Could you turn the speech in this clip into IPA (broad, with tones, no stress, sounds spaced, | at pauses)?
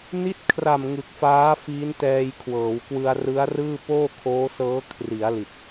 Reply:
n i˦˥ t̚ kʰ r a˨˩ m ŋ ɯ˨˩ k̚ f aː˦˥ f iː˦˥ n t ɛː˧ j kʰ w ɤː˩˦ w k w ɯ˧ a̯ r ɯ˦˥ a̯ r ɯː˥˩ p oː˥˩ kʰ oː˦˥ s ɤː˦˥ kʰ r i˩˦ a̯ l i˨˩ t̚